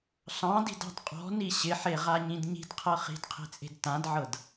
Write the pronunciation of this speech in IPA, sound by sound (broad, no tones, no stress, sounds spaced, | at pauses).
ɬ ɑ̃ d i̤ d ɑ̤ d qʼ ɔ̤ n i ɕ ɪ ħ e ʁ a ɲ ĩ d ɲ i̤ d qʰ ɤ χ i̤ d qʰ e̤ t͡sʼ e̤ d t ã d ʕ ɤ d